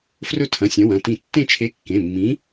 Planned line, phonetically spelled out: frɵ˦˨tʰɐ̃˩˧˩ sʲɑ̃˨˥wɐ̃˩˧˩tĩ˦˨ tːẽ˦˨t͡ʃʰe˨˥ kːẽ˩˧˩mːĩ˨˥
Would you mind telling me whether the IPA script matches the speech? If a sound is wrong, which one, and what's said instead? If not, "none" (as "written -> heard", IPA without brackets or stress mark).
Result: ɑ̃˨˥ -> ɐ̃˨˥